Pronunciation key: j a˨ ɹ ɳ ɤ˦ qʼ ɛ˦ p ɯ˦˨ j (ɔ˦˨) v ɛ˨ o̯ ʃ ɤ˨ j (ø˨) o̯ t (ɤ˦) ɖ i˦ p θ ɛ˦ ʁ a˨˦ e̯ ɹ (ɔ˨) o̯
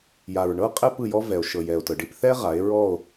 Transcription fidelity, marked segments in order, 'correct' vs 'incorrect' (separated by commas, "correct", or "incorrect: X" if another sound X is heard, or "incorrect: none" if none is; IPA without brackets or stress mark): incorrect: ɔ˦, incorrect: ɛ˨, incorrect: ɤ˨, incorrect: ɔ˦˨